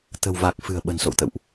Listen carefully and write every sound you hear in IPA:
t̪ ə̤˨˩ w v a˨˩ k̚ f ɨ̤˨˩ ə̯ ɓ ə̤˨˩ n s o̰˧˨ w t̪ ə̰˧˨ w ʔ

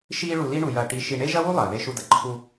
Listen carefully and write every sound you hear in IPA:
ʃ iː˥ ɭ u˧ l i˥ ɳ u˧ j ɐː˧ ʈ i˧ ʃ i˧ ɳ e˥ ʒ ɐ˥ w u˥ lˠ ɐː˩ ð e˧ ʃ u˧ d ɐ˩ ǃʰ u˧

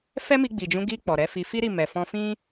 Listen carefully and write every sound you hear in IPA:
f ɛ˦ m i˧ ɡ͡b i˨ d͡ʒ ũ˨˦ ɡ i˧ k͡p ɔ˨ ɾ ɛ˨˦ f i˧ f i˦ ɾ i˦˨ m ɛ˨ f ɔ̃˧ f ĩ˦

